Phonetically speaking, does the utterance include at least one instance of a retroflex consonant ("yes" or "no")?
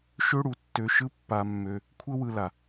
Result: yes